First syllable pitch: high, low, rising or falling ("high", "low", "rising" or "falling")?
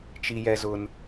high